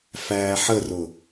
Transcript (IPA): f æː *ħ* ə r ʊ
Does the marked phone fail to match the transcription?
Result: no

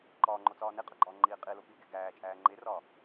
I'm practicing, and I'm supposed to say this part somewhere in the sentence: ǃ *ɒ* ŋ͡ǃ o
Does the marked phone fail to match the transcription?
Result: yes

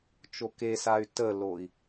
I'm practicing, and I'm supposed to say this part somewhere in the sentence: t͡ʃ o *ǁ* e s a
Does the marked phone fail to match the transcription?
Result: yes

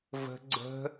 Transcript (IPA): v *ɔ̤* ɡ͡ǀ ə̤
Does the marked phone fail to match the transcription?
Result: yes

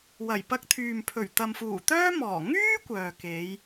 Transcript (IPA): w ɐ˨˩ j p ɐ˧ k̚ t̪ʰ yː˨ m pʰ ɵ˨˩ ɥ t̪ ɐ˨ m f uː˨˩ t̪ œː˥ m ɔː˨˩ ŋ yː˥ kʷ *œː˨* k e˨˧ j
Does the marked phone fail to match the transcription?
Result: no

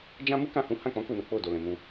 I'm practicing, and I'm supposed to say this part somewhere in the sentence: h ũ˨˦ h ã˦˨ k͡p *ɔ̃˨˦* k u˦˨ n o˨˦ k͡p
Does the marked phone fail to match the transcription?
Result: no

